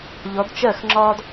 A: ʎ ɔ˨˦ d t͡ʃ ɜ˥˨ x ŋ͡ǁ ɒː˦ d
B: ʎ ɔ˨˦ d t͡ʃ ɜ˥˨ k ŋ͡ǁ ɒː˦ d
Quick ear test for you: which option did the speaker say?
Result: A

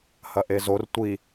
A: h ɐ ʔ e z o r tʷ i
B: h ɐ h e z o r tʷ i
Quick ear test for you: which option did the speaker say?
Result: A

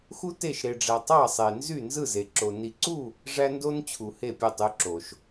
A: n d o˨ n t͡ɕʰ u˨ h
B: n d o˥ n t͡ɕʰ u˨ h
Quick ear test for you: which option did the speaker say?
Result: B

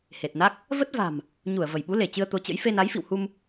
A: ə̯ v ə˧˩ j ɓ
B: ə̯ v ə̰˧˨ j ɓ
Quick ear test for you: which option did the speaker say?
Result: A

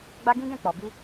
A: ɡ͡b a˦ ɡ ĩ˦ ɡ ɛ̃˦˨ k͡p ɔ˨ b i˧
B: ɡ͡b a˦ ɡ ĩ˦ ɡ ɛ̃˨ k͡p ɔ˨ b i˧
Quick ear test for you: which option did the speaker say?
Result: A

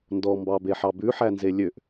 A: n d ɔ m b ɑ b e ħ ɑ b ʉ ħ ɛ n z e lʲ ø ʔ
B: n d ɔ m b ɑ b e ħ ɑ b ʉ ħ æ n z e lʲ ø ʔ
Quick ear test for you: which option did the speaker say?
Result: B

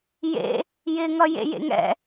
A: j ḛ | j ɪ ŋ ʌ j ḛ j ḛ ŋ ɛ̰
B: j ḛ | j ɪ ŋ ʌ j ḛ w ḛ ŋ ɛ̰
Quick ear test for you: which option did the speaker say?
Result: A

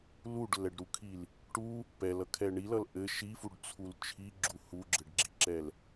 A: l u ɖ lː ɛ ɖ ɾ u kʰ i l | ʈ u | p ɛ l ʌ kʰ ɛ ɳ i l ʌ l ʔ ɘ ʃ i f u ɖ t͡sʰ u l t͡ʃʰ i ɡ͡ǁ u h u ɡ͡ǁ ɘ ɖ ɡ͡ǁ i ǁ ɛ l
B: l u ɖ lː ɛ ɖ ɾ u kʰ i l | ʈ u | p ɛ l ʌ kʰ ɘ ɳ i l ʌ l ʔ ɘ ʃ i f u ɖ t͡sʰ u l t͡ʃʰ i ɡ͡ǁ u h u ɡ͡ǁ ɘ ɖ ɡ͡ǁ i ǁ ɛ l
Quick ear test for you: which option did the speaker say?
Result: A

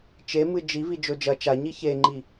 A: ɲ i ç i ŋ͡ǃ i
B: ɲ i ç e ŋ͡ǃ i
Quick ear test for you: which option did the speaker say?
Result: B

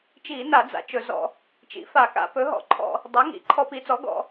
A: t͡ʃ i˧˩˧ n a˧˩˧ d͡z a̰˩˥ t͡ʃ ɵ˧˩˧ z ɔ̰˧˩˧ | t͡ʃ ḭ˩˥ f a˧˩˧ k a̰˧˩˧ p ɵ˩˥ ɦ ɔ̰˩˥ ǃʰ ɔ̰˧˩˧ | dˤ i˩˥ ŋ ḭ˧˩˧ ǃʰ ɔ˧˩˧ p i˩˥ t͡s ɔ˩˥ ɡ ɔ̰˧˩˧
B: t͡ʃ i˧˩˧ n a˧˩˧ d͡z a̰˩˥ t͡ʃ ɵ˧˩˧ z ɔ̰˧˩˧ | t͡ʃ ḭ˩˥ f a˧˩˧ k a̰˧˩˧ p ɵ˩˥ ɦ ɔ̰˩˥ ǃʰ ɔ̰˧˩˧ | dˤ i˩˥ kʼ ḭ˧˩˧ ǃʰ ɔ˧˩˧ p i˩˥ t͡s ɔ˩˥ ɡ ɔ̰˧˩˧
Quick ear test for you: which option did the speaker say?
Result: A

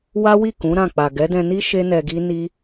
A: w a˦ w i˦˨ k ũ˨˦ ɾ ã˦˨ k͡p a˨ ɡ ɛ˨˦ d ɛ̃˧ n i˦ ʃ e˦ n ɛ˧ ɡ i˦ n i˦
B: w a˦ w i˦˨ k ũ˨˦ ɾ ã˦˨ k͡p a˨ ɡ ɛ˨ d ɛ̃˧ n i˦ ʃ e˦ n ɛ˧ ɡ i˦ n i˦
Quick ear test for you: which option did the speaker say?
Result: A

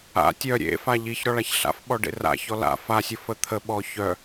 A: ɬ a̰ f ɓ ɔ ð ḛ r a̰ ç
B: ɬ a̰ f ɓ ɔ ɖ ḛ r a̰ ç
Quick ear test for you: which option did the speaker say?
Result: B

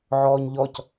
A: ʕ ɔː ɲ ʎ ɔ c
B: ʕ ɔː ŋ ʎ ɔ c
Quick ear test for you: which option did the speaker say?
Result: A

